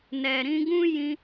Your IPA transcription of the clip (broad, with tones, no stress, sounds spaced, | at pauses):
n ɛ˨ ɾ ĩ˧ ɡ ũ˦ j ĩ˦